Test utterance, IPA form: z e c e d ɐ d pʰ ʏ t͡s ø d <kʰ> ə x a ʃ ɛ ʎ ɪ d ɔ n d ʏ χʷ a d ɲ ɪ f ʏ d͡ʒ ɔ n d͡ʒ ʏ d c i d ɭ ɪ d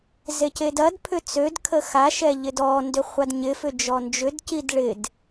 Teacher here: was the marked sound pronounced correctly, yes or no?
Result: yes